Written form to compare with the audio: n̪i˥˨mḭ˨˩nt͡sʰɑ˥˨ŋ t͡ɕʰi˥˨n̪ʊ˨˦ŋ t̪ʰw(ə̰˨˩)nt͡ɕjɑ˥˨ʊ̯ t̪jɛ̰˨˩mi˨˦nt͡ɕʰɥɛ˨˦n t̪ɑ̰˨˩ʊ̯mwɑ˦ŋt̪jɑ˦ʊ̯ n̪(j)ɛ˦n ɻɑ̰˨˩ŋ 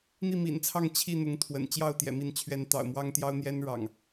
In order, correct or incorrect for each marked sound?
correct, correct

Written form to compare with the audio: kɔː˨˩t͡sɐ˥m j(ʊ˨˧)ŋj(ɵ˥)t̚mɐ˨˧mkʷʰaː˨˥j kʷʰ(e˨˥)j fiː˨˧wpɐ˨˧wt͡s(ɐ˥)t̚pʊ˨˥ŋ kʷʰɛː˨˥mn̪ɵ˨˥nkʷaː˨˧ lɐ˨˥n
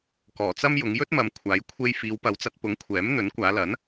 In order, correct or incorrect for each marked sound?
correct, correct, incorrect, incorrect

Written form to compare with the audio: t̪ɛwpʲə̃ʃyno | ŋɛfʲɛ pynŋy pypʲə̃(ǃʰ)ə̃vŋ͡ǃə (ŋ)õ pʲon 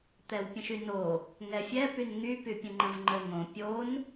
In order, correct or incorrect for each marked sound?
incorrect, correct

